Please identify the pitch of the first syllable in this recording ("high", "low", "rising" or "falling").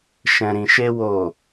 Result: low